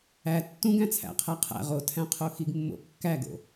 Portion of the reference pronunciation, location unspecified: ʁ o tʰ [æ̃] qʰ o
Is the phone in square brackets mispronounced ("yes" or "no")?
no